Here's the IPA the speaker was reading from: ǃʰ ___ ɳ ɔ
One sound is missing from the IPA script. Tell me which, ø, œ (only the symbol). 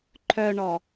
œ